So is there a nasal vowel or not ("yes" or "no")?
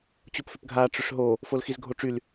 no